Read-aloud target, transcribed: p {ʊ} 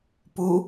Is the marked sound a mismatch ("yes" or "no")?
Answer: yes